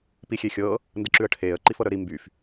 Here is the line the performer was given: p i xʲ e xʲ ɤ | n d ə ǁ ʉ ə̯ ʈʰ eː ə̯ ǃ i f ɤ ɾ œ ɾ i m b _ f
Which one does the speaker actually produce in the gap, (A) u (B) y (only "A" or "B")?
B